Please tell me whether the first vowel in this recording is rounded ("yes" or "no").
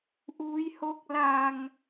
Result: yes